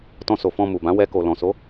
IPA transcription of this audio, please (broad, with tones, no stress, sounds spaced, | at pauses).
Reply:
t ɔ̃˧ s o˨ f ɔ̃˧ m u˨ b ã˨˦ w ɛ˧ k o˨ l ɔ̃˨ s o˨˦